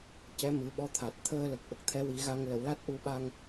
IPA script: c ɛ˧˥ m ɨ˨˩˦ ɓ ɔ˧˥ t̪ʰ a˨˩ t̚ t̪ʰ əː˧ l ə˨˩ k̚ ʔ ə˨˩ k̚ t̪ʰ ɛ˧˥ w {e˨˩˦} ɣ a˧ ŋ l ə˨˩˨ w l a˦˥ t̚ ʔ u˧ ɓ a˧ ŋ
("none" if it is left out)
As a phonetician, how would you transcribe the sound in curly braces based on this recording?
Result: i˨˩˦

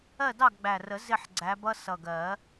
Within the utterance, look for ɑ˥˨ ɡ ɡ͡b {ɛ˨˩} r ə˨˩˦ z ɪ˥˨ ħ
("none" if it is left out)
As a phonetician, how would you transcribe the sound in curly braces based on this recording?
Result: æ˨˩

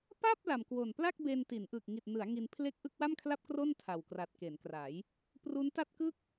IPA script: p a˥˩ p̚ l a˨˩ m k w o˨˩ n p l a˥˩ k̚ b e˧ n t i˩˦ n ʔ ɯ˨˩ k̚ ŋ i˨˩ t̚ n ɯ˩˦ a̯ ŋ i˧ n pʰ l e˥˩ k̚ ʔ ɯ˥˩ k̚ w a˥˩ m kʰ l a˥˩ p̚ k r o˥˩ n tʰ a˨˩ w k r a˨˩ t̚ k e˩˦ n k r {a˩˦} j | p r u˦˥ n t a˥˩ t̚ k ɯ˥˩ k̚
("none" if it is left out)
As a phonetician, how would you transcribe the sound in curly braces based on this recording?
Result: a˩˦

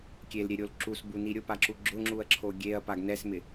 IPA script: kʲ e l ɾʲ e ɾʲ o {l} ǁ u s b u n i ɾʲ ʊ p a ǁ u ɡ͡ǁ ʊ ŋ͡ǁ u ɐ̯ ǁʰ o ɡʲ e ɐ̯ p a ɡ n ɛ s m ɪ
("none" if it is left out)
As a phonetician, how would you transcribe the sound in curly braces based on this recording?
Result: l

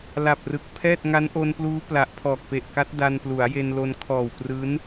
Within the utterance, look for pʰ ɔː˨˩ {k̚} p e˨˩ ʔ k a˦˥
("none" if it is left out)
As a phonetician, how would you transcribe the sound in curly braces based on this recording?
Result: k̚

